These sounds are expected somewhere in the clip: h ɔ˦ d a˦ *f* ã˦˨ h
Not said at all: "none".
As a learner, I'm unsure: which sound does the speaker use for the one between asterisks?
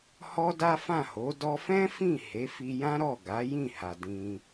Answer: f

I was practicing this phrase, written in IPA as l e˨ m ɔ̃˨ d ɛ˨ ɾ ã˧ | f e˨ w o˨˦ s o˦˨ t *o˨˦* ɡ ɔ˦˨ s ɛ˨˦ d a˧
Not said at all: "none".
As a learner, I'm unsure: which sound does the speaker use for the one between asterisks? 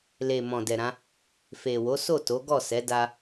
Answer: o˨˦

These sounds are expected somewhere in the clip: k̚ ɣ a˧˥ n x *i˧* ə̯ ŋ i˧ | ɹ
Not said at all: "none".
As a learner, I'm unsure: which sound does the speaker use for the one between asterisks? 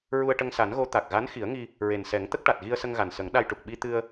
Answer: i˨˩˦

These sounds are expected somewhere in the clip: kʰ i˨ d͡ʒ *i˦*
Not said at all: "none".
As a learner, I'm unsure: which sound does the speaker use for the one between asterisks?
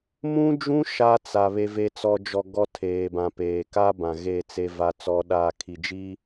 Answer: i˦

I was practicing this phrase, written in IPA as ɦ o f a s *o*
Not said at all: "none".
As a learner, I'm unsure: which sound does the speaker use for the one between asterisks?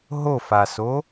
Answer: o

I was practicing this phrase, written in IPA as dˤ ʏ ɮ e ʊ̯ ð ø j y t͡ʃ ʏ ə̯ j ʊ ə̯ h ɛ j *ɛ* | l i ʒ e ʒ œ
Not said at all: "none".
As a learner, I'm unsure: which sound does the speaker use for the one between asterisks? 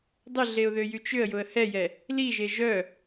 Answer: ɛ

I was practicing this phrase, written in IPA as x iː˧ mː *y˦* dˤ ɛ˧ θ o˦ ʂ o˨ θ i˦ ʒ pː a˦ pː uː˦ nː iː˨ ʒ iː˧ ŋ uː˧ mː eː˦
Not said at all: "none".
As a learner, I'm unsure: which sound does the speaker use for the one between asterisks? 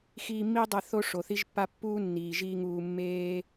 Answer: i˦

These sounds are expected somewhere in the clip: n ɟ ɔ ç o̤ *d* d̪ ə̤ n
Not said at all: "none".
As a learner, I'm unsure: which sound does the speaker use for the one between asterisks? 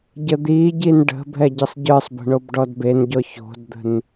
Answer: d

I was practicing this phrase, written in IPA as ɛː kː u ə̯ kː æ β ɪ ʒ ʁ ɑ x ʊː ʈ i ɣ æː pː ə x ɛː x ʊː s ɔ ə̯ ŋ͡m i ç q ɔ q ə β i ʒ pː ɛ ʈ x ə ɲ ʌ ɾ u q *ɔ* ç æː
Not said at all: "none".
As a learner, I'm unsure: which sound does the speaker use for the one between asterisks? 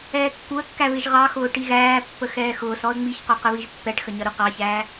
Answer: ɑ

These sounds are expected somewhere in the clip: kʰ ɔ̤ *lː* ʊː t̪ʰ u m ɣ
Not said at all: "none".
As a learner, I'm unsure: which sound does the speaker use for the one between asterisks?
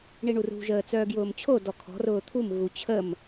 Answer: r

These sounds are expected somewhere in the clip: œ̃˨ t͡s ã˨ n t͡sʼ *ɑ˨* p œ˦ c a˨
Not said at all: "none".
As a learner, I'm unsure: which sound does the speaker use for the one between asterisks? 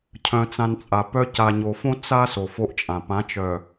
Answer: a˨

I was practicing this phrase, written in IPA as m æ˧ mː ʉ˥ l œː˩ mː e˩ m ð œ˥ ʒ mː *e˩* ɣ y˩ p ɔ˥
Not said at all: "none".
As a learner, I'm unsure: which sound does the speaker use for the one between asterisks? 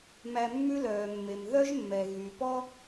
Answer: ɛ˩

